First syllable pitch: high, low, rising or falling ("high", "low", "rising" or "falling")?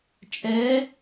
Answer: rising